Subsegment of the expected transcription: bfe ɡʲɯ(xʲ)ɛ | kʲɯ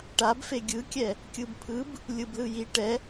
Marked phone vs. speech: incorrect: kʲ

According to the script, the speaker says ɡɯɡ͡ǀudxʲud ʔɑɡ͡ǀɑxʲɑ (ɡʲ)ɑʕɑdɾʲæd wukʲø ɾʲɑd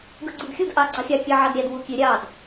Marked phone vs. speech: incorrect: kʲ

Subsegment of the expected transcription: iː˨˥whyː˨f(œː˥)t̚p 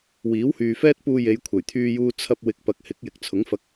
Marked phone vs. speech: incorrect: ɛː˥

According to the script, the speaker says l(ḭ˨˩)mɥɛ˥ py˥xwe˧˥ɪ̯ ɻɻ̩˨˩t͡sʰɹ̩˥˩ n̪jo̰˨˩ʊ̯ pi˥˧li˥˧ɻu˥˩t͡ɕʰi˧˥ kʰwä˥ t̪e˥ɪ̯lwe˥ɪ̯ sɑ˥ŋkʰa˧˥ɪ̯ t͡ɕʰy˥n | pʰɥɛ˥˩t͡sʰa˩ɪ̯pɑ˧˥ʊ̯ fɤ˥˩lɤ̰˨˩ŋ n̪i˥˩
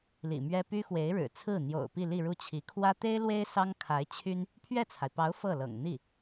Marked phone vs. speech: correct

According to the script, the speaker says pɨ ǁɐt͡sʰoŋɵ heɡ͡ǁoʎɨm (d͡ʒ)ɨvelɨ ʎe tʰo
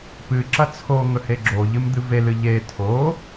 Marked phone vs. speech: incorrect: d̪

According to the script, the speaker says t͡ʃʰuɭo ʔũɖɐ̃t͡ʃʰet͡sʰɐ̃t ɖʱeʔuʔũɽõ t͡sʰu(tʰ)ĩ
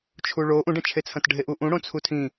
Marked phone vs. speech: correct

